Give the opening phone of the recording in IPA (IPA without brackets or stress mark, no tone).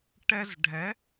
ʈ